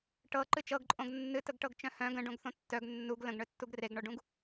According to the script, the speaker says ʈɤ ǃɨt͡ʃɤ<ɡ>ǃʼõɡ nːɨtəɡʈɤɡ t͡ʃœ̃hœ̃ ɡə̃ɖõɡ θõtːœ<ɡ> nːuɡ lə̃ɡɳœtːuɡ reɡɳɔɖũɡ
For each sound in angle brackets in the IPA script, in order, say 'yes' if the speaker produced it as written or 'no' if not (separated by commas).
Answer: yes, yes